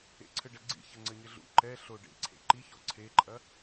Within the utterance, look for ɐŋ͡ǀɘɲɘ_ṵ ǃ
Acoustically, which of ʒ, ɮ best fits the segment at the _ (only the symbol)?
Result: ɮ